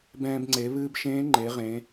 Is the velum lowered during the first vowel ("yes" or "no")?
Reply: yes